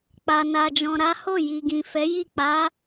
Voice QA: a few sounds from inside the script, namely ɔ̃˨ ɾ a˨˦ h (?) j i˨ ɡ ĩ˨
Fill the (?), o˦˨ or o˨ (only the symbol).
o˦˨